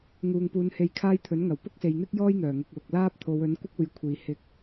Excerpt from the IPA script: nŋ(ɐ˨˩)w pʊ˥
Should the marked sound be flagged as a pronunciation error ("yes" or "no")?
no